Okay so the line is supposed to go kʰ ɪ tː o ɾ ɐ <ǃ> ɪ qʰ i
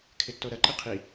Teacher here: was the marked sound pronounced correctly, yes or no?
yes